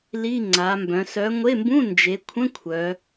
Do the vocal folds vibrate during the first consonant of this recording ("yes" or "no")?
yes